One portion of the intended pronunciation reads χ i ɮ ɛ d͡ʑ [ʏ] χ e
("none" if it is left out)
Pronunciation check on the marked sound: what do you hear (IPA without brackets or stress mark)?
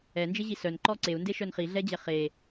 ɛ